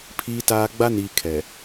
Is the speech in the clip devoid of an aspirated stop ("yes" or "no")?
no